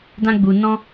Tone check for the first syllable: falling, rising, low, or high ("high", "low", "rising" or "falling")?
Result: high